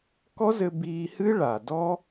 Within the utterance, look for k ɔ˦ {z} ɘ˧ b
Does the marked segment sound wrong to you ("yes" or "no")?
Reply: no